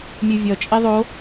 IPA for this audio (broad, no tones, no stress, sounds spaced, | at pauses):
mʲ ɯ vʲ ʌ t͡ʃʼ i ðˤ o